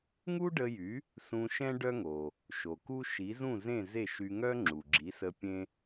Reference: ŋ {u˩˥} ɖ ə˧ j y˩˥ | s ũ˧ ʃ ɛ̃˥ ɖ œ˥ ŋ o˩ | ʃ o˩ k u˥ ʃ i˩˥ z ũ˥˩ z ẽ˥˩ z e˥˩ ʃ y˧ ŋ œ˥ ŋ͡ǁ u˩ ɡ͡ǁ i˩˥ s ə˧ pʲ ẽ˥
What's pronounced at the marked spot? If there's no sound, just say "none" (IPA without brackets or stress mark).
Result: u˥